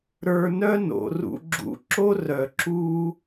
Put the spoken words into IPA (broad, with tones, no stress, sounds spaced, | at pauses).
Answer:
ɾ ə˞˨ n œ˦ n o̰˩ r ṵ˨ ɡ͡ǁ ṵ˨ ǁ o˦ r œ˩ ǁ u˦